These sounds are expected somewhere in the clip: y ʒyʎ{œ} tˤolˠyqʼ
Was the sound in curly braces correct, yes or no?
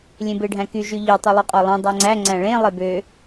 no